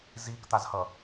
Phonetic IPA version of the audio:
ziːkt̪azhʌ

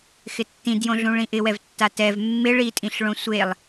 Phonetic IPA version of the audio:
xɪtːĩdjõɮũ ɭĩʔɪwɛvtːa tɛv mːɪ ɭitʼĩɬɭõ sʷelˠ

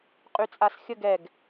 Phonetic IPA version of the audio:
qʼyt͡sʼasxʲəɡ ɛɡ

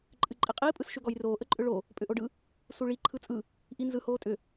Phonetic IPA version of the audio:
ǃʼɨǃʼiqʼiː pʼɯsʃʏ ɡɔjroː ʔəǃʼʏɭo | pʼʏʔoɖɯ | suɭi ǃʰɯt͡sʼɯ | ʔinzɯ hoːtʼʏ

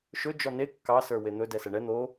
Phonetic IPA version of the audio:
ʃɵ d͡ʒɔne kːɑ sə˞wen̪ɵ dɛsɛɳɛ n̪o

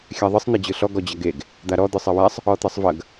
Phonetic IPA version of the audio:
xʲæðˤɯsˤ n̪ɛd͡ʑɯɬɔ ɡɔd͡ʑɐɡeɡ | d̪aɾɔ d̪ɯsˤɜwæsˤ | ɔt̪ɜsˤvɐɡ

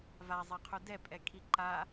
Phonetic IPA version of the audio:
vazˤeqʰu dɛpʼɛkʰi ǃa

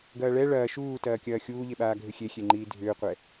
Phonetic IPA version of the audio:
ɡɐːɭɛ ɭɐː ʃuːtɐːkʲɐː xʲuːʎeɓaː ɡʱʏxʲexʲeŋ͡ǃiː dʱʏːqʷɛ

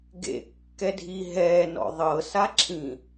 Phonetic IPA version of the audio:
ɡḛ kːɛdʱi ɦɛːnɔ̰ ðˤɤsaǁʰĩ

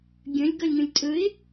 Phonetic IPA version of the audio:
ɡʲə̃lʲ ɡʌlʲŋə̃lʲtʼɵɪ̯

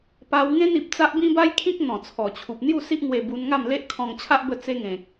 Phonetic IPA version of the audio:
pa˧wŋẽ˦n i˨p̚t͡sa˦ʔ bĩ˦ba˦jkʰĩ˦k̚ n̪ɔ̃˨˩t͡sʰɔ˨˩t͡ɕʰu˨p̚ n̪ju˥˧si˦ʔŋwe˧ bu˧nŋa˥˧m le˦ʔkʰɔ̃˧ŋt͡ɕʰa˦ʔ bə˥˧t͡se˦ ŋẽ˨k̚

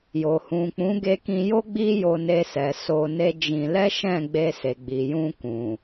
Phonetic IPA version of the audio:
jo˨hũ˨k͡pũ˨˦ ɡe˧kĩ˧jo˦ ɡ͡bi˦ jo˧ne˧sɛ˨ so˧ne˦d͡ʒĩ˧ lɛ˦ʃɛ̃˦˨ ɡ͡be˧se˨ɡ͡bi˨jũ˧ kũ˨

